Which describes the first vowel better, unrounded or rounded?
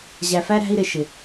unrounded